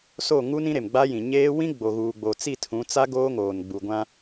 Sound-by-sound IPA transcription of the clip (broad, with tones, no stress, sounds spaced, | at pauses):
s o˦˨ ŋ u˦ n ĩ˦ ɾ e˨ m ɡ͡b a˦ j ĩ˨ ɲ eː˦ w ĩ˦ ɡ͡b o˨ ɣ uː˨ ɡ͡b o˨ t͡s i˦˨ tʰ ũ˨˦ t͡s a˦ ɡ oː˦ ŋ oː˨ n ɡ͡b u˨ ɡʷ ã˦